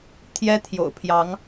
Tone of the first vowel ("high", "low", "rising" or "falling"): high